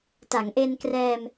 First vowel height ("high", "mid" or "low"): low